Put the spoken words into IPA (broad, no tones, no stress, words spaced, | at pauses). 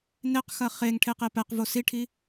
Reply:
neqxɐ χeŋ ʈʰeqepɛqvo siʈʰi